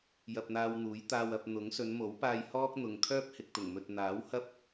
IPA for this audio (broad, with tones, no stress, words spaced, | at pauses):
jɐ˧p̚n̪aː˧wn̪uː˨˥j t̪aː˧wɐ˧p̚ n̪ʊ˨˥ŋ sɵ˨˧nmo˨˥wpaː˧j hɔː˥k̚n̪ʊ˨ŋ kʰœː˥p̚hɪ˨k̚t̪ʊ˨˩ŋmɵ˨t̚ n̪aː˨˥whɐ˥p̚